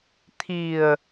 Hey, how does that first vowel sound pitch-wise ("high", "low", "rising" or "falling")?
low